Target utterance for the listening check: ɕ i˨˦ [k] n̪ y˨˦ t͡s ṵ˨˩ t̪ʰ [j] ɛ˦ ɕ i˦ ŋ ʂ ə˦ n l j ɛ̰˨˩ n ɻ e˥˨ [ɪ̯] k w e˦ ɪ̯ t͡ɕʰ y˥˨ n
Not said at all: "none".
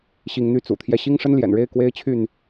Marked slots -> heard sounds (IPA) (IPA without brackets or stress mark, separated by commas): ŋ, j, ɪ̯